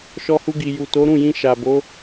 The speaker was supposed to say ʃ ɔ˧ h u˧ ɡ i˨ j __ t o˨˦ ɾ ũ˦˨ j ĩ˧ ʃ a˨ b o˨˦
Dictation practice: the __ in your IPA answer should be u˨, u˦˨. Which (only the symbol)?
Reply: u˨